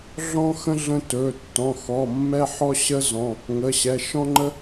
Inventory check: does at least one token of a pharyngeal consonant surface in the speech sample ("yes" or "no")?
yes